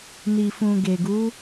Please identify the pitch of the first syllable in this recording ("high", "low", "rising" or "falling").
low